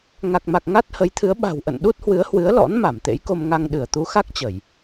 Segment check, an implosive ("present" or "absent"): present